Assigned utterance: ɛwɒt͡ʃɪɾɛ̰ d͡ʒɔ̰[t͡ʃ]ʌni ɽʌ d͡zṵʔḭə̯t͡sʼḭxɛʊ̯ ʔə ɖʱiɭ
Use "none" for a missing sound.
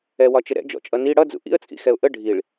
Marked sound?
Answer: t͡ʃʼ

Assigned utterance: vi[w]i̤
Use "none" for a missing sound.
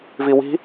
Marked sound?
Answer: w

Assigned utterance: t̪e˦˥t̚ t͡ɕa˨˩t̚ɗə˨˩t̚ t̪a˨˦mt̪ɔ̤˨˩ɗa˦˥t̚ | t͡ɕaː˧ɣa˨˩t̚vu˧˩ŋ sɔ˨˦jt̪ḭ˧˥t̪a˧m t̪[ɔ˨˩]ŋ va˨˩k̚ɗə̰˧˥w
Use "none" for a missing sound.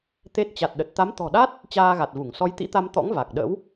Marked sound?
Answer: ɔ̰˧˥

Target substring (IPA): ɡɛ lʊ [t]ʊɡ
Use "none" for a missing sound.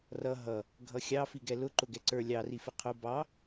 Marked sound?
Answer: ǃ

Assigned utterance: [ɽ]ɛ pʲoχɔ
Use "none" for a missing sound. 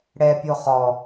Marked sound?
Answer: ɽ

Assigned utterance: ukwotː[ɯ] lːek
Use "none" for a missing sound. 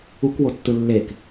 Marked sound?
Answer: ɯ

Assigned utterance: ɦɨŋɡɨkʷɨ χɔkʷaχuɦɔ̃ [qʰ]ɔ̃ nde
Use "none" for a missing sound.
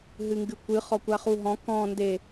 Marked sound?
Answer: k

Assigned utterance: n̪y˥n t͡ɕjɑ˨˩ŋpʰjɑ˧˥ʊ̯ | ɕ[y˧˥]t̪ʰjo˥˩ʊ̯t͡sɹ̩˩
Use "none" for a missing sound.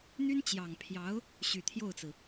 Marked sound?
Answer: y˨˩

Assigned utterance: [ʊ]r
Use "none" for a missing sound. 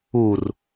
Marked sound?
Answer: u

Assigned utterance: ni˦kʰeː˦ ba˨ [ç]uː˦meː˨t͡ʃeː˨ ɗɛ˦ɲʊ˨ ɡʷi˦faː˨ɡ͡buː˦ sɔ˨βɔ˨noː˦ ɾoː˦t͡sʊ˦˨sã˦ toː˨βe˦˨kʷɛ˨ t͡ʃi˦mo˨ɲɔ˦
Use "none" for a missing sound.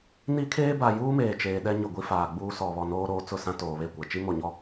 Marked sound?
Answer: j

